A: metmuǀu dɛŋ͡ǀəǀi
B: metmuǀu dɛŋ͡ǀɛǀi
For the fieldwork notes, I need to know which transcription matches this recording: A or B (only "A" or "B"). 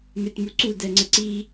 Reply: A